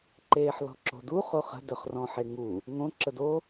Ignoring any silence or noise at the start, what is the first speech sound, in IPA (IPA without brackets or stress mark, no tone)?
ǃ